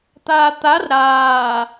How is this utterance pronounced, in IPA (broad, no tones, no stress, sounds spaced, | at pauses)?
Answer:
t̪ aː t̪ a r ɾ aː